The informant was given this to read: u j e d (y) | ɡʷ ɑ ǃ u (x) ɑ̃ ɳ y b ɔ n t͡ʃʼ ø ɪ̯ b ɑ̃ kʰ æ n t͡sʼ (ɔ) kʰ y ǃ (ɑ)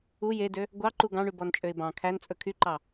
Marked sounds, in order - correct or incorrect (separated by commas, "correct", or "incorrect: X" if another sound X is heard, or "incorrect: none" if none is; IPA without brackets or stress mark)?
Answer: incorrect: ø, incorrect: ɡ, incorrect: ɵ, correct